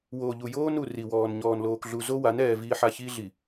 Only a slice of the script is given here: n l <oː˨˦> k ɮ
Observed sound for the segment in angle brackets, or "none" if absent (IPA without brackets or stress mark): oː˨